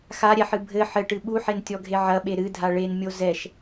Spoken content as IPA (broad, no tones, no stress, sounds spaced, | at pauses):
x a ɾʲ ɛ ħ ɨ bʱ ɘ ħ ɘ ʈ ɨ ɓ u ħ e n tʲ ɔ ɡʱ e ʕ ɐ ɓ e ɾ ɨ dʱ a ɭ e n mʲ o z ɛ ʃ